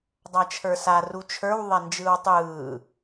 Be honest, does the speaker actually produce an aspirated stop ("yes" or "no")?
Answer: yes